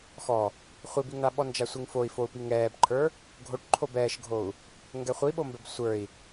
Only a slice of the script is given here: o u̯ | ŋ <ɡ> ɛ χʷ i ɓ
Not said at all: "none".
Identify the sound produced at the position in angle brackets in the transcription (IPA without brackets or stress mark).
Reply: ɡ